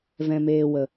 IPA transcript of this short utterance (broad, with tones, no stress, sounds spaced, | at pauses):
v ɛ̃˨ m eː˨ w ə˨